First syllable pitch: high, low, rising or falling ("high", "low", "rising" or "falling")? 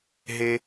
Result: high